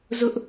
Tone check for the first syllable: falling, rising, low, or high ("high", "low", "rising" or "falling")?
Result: high